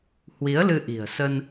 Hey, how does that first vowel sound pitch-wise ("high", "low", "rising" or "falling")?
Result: rising